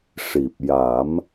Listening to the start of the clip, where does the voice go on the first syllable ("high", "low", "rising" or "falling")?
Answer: low